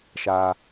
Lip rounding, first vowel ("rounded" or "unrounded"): unrounded